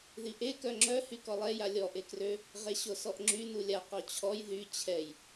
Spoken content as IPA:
ð i ʔ e k œ ŋ͡ǁ œ h y k ɔ lˠ ɛ j a lʲ ɔ ʔ e k r ø | ʁ e ɕ o s ɔ ʔ ŋ͡ǁ y n u lʲ a q ɔ t͡ɕʰ ɔ j ð y t͡ɕʰ ɛ j

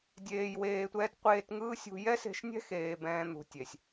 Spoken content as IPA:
dʲ eː˨ j w eː˨ tʷ ɛː˧ t qʷ eː˧ t ŋ ɯː˦ sʲ ṳ˧ j ɛ˦ s e̤˧ ʃ nʲ ɛ̤˦ x eː˨ b ɛ̃ː˧ n̪ ṳ˨ tʲ e˨ sʲ

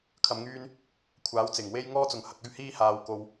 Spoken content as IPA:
kʰ ɐ˧ m ŋ yː˥ n | kʷʰ aː˨˥ w t͡s ɪ˨˩ ŋ w e˥ j ŋ ɔː˥ t͡s ʊ˨ ŋ h ɐ˧ k̚ ɵ˥ ɥ h iː˥ h aː˨ w k o˧ w

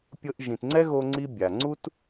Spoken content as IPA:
pʲ ɤ˧ ʔ ʒ ĩ˩ t ŋ͡ǀ ɛ˥ ɣ o˧ ŋ͡ǀ i˧ bʲ a˩ ŋ͡ǀ u˥ t

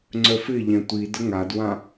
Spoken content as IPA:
ŋ͡ǀ œ f ɪ ʎ ɛ̃ tʷ i d ə ŋ a d w ã

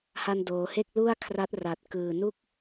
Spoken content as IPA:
h a˧ n d oː˩˦ h e˥˩ k̚ l u˥˩ a̯ kʰ r a˦˥ t̚ r a˨˩ t̚ k ɯː˨˩ n u˥˩ k̚

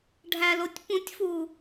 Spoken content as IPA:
ɖʱ æ l o tʲ p ũ tʲ f uː

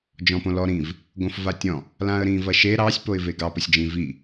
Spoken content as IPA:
d͡ʒ ɔ̃ p õ l ɔ ɾ ĩ v | ɡ õ f v a tʲ ɔ̃ | l ã ə̯ ɾ ĩ v ɐ ʃ e ɾ ɑ sʲ p o ɪ̯ v e ɡ ɑ p ə sʲ d͡ʒ ĩ v i

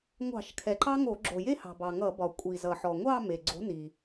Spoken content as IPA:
ŋʷ ɑ̤˧˩˧ ʃ kʰ ɛ˩ ǃ ɑ˥ ŋ o˧˩˧ ɡ͡ǁ o˩ j e˥ h ɑ̤˩ b ɑ˩ ŋ ʌ˧˩˧ b ɒ˩ kʷʼ i˩ z ʌ˩ ħ ɔ˩ ŋʷ ɑ˥˧ m e˩ ɡ͡ǀ o̤˨˥ n i˩

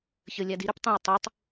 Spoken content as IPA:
ç ə lʲ a d i ɾ ø p tˤ ĩ w tˤ o tˤ

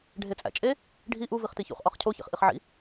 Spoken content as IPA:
ɖʱ e t͡sʼ æ̰ t͡ʃʼ e | ɖʱ i ʔ u v i χ t i ç ṵ χ ʔ ɒ χ cʰ o ç ḛ χ ʔ i χ ʕ ḭ

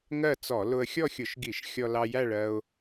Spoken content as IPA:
ŋ ɜ˥˧ t͡s ɔ˧˩˧ l ʊ˧ ə̯ xʲ ɔ˥˧ xʲ ʊ˧˩˧ ʃ ɡ i˧˩˧ ʃ xʲ ɔ˧ l ɑ˧ j æ˥˧ ɭ ɜ˧ ʊ̯

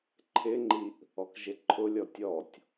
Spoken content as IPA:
ǃʰ ɪ ŋ͡ǃ i ʔ | ɔ k ʒ ɪ ǃʰ ʊ lʲ ɔ tʲ ɔ tʲ

